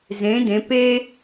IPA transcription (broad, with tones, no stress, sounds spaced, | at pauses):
z ẽ˩˧ d ẽ˩˧ p e˥